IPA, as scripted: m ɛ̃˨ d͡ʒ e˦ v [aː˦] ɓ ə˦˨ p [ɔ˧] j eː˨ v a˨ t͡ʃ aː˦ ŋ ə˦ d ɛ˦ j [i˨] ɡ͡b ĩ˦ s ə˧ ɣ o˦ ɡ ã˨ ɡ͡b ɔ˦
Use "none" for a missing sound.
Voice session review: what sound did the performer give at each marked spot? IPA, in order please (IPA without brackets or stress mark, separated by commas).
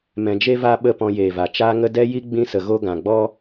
a˦, ɔ̃˧, i˦